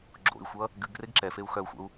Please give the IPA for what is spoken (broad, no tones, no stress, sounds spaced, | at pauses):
ɡ͡ǁ o̰ i̯ xʷ ʌ | ɡ ɨ ɡ r e ɡ ǁ ɛ f e u̯ x œ u̯ xʷ ə̰ u̯